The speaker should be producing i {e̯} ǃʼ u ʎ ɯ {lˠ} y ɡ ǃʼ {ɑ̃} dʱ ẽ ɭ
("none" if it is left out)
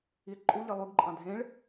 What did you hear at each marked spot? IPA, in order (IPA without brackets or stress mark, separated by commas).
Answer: e̯, lˠ, ɑ̃